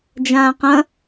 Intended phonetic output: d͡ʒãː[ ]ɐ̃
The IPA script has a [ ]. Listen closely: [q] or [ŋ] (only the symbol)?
q